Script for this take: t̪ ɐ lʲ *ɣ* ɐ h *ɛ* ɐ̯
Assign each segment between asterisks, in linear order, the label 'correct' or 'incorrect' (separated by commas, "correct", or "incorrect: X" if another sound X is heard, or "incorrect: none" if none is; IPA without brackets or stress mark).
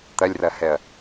incorrect: r, correct